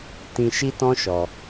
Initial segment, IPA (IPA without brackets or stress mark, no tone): t